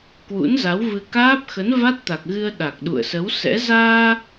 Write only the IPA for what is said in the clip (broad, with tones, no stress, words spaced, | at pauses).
kwṵ˧˥nza˨˦wvɨ˧ kaː˦˥p̚xə˨˦n va˦˥t̚t̪a˨˩k̚ɣɨ˧ə̯ ɗa˨˩k̚ɗṵ˧˨ə̯sə˨˦wsɛ̰˧˥ zaː˧